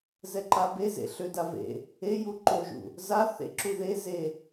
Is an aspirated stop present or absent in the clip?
absent